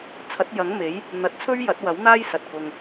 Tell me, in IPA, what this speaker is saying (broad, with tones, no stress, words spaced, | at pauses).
t͡sʰɐ˨˥t̚jɐ˨˥ŋme˨˥j | n̪ɐ˨t̚t͡sʰɵ˥ɥ jɐ˨˥t̚wɐ˨˥wn̪aː˥j sɐ˨t̚kʊ˧ŋ